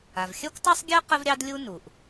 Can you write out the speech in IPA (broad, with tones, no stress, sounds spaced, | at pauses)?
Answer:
a˩ v xʲ ɜ˥ kʷ tˤ ɑ˥ sˤ ɡʲ ɜ˥ q ə˥ v ɾʲ ɑ˥ d lʲ u˥ n u˩ ʔ